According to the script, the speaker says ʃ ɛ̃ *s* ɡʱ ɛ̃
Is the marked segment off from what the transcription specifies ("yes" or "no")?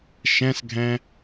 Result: no